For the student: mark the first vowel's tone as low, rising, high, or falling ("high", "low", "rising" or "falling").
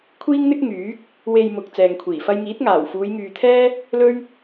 high